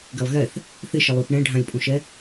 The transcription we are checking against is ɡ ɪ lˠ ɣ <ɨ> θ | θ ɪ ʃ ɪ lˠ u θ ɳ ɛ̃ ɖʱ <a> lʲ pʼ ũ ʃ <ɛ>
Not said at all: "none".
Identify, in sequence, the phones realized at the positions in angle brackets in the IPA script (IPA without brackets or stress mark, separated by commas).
ɛ, ã, ɛ